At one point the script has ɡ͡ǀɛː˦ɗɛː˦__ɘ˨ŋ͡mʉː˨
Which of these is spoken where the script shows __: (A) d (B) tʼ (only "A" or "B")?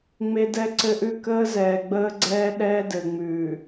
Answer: A